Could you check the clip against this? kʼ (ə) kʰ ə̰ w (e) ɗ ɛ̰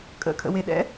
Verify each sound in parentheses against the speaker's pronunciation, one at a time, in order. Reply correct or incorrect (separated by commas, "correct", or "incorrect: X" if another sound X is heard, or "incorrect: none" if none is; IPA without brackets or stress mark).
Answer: incorrect: ə̰, correct